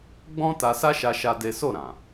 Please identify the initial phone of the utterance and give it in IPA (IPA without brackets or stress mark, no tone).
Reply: ɡ͡b